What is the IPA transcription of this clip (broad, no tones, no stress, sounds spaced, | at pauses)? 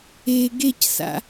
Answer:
e ɡ e c s a̰